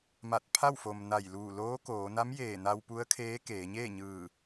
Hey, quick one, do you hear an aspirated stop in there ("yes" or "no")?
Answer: yes